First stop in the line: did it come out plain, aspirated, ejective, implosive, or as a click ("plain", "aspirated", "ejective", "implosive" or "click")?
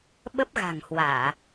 implosive